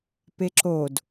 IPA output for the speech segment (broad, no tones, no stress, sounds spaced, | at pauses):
p e ǁ o d